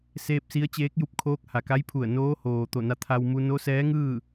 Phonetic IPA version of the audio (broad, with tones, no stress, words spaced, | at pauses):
seː˧p̚si˧˥ə̯ t͡ɕeː˧˥k̚ju˧p̚kʰoː˧˥k̚ ha˩ka˧˥jpʰu˧˩ə̯ noː˧˥hoː˩ t̪o˧˩na˧ t̪ʰa˧wmu˧ no˧˥sɛː˧˥ŋɯː˥˨